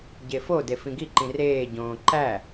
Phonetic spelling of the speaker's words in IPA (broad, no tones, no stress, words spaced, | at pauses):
ɟefode fĩɡiǃĩ reːɟõː ǃæ